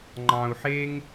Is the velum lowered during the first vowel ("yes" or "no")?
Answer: yes